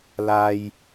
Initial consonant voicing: voiced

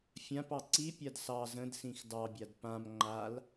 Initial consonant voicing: voiceless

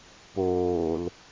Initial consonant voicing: voiceless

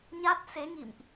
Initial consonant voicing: voiced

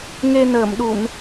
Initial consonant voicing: voiced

